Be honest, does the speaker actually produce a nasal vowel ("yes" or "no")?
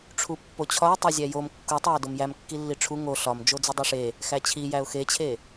no